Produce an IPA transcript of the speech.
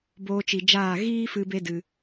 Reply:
b oː˧ t͡ʃ i˨ d͡ʒ aː˦˨ ɣ iː˦ f ɨ˧ b e˦ d ɨ˧

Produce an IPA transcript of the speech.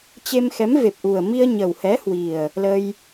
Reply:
t͡ɕ e˧ m x ɛ˨˦ m v e˨˩ p̚ ʔ u˨˩ ə̯ m i˧ ə̯ ɲ ə˨˩ w h ɛ˨˦ h w i˨˩ ə̯ | l ə˧ j

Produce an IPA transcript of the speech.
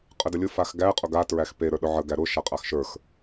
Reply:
qʼ ə d ə lʲ ʊ f a x ɡ æ qʼ ʊ ɡ a t ɹ æ x p e ɾ ə˞ ɗ ʊ ʕ ə ɡ æ ɾ ʊ ʃ a qʼ a x ʃ ə˞ x

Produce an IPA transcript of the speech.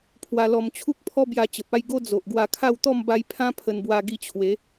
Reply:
pʰ w a˧ l ɔ˧ m t͡ɕʰ u˦ k̚ pʰ ɔ˦ b j a˧ t͡ɕ ə˨ p̚ a˥˧ j ɡ o˦ d͡z o˨ ʔ ɡ w a˧ kʰ a˥˧ w t̪ ɔ˥˧ m b a˧ j pʰ ã˦ pʰ ə˧ n b w a˧ ɡ i˧ t͡ɕʰ w e˨˦

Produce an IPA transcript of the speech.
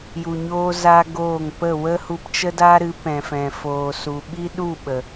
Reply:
j u˧ ɲ oː˦ z a˦ ɡ oː˦˨ ŋ p ə˦˨ w ə˦ h u˧ p t͡ʃ ə˦ d a˦ ɾ ɨ˨˦ p ɛ̃˨ f ɛ̃˨ f oː˨ s u˨ ɓ i˦ ɗ u˦˨ ɓ ə˨

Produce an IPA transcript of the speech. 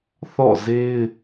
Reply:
θ ɔ̰˦˨ z e˦ ɪ̯

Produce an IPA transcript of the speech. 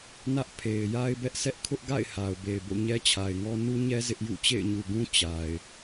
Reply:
n ä˦ ʔ pʰ e˨ ɪ̯ j a˦ ɪ̯ b ɛ˦ ʔ s ɛ˦ ʔ kʰ ʊ˦ ʔ ɡ a̰˦˨ ɪ̯ h a˨ ʊ̯ b e˨ ɪ̯ b o̰˦˨ ɲ ɛ˦ t͡ɕʰ a˨ ɪ̯ ŋ ɔ˦ n u˦ ɲ ɛ˦ z ɪ˦ ʔ j ṵ˦˨ t͡ɕ ḛ˦˨ ɪ̯ ɲ u˨ ɡ ũ˦ t͡ɕ a˨ ɪ̯

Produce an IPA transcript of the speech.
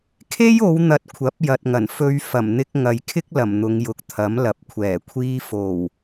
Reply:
kʰ e˥ j o˨˧ w n̪ ɐ˨˥ t̚ kʷʰ ɐ˨˥ p̚ j ɐ˨ t̚ ŋ ɐ˨˩ n f ɵ˧ ɥ f ɐ˨˩ m n̪ ɪ˧ k̚ ŋ ɐ˨ j kʰ ɪ˥ k̚ l ɐ˨˩ m n̪ ʊ˨˧ ŋ j ʊ˨˥ k̚ t̪ʰ ɐ˨˥ m l ɐ˨˥ p̚ kʷʰ ɛː˨˩ kʷʰ iː˧ f o˨˩ w

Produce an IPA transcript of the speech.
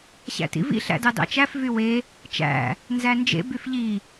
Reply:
ɕ æ̰ t ḭ v ḭ ɬ æ̰ d ɑ d ɑ̰ t͡ʃ æ f v y w e | t͡ʃ æ̰ | n z æ n d͡ʒ ḛ b y f ʎ i

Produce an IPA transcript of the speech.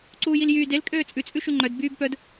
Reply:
ǀ uː j i l j yː d e l kʼ øː t͡sʼ ʉ t͡sʼ ʉ ʃ ʉ ŋ͡ǃ œ d b yː b p œ d

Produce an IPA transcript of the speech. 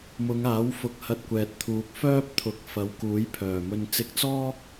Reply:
m ʊ˨˧ ŋ aː˨˥ w f ʊ˧ k̚ h ɐ˧ t̚ kʷ ɛː˨ t̚ t̪ʰ uː˨ k̚ f œː˥ p̚ t̪ʰ ʊ˨˥ k̚ f ɐ˨˧ w k uː˨˥ j pʰ œː˨˩ m ɵ˧ n t͡s ɪ˧ k̚ t͡s ɔː˥

